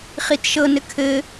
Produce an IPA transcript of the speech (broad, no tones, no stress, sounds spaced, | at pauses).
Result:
χ i t ʃ ɤ n ɘ kʰ ɘ